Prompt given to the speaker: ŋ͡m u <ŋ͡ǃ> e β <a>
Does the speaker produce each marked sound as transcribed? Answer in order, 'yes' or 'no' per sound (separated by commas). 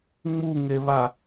no, yes